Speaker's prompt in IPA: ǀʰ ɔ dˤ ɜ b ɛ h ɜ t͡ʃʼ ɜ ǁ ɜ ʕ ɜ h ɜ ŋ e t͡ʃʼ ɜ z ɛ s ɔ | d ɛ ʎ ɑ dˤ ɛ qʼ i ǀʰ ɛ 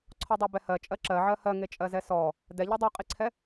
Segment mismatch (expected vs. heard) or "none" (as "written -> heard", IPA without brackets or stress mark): ɑ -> ɔ